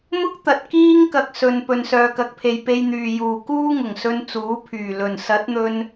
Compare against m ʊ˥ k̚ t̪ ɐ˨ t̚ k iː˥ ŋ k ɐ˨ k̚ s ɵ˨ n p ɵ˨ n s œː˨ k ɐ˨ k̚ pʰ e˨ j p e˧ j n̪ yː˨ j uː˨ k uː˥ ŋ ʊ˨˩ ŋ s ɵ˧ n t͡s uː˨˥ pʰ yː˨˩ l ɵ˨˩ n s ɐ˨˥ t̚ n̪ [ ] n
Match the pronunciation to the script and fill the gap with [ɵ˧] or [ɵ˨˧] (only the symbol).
ɵ˧